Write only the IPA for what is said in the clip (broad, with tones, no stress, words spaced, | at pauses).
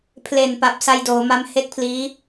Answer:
pʰle˨˩npa˨˩p̚ sa˧jdoː˩˦ma˧m he˥˩k̚pʰliː˦˥